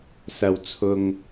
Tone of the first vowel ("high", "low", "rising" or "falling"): low